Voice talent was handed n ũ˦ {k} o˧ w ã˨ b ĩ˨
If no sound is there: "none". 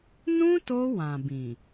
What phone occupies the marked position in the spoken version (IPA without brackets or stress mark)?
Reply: t